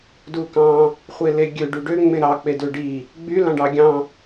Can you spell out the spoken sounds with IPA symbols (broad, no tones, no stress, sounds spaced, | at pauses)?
d u k ɑ̃ | χʷ e l e ɡʲ ø ɖ y ɖ ø ŋ͡m ẽ ɾ ɑ k͡p e d ø ɖ i | ɡ͡b y l ɑ̃ ɖ ɑ ɡʲ ɑ̃